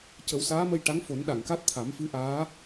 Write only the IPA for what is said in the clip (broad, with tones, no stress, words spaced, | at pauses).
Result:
cə˨˩˦wsaː˧˥mə˧j ʈa˧˥ŋfo˨˩˦nɗa˨˩˨ŋka˦˥t̚ t̪ʰa˨˩˦mfɨ˧˥ʔaː˧˥